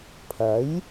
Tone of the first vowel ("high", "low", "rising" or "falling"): rising